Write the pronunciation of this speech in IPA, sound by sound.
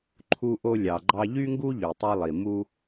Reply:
ǃʰ u˧ ʔ o˧ lʲ ɑ˩ ɡ͡ǃ ɑ˧ ʎ y˥ ŋ ɡ u˥ ʎ y˩ tˤ e˧ lˠ i˩ m u˧

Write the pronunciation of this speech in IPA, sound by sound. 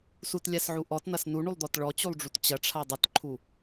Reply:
s u t lʲ a s ʕ u ʔ ɔ t n̪ ɐ s n u ɳ u lˠ d̪ ɔ t ɭ ɔ t͡ɕ u lˠ ɖ͡ʐ u t t͡ɕ ɐ ʈ͡ʂʰ a dˤ ɐ t ǃʰ u

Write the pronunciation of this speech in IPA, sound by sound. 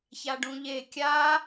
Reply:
ç a ɖ ũ ʎ e kʲ a

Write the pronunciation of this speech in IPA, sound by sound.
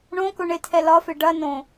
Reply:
ɳ õ k ʊ ɳ e tʰ ɛ l ɒ f e ɖ ɐ n õ

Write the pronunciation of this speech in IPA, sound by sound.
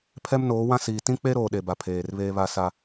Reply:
pʰ ɛ˦ m n oː˨˦ w ã˦ s iː˨ t ĩ˦ k͡p e˦ ɾ oː˨ ɗ e˨ b a˨ pʰ eː˨ r β eː˦ β a˦ s a˦

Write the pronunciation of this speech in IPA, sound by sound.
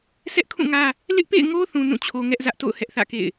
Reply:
sʰ ɛ˦ ʔ kʰ ũ˦˨ ŋ ä˦ | l ɪ˦ ʔ p ḛ˦˨ ɪ̯ ŋ o˦ θ ũ˦ n ũ˦˨ t͡ɕʰ o˦ ŋ ɛ˦ ʔ z ä˦ ʔ t o̰˦˨ ʊ̯ h ɛ˦ ʔ θ ä̰˦˨ k ḛ˦˨ ɪ̯

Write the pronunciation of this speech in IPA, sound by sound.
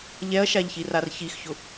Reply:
ʎ ɛ ɐ̯ ʃ a ʎ ç i r a r ç i x ç ʊ

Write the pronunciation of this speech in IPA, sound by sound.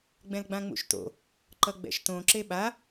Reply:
ɡ͡b ɛ̃ l ɡ͡b ã ŋ͡m ṵ ʃ t o̰ | ǃ ʌ ɡ͡b ɛ̰ ʃ t õ ǁ e ɓ a

